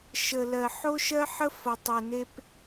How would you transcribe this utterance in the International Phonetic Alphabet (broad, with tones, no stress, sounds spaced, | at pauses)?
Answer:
ʃ ə˨ l ɜ˨ ħ o˦ ʃ ɜ˦ ħ ə˦ f ʌ˨ tˤ ɘ˨ n e˦ p